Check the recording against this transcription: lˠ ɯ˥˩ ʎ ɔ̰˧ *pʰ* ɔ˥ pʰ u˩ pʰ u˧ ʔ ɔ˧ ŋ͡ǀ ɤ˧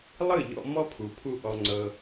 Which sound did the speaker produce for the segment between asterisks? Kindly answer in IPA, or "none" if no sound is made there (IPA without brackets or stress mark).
m